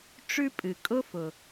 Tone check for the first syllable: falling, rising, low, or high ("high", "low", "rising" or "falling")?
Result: high